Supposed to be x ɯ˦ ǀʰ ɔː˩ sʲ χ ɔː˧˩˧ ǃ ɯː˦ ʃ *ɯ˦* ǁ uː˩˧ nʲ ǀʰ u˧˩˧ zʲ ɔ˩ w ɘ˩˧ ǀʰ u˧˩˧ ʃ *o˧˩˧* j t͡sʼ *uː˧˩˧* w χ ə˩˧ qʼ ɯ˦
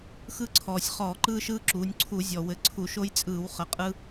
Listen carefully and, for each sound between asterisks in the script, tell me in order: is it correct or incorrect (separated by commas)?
incorrect, incorrect, incorrect